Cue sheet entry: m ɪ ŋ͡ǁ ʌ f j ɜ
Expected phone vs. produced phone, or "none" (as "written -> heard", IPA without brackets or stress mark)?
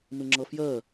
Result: none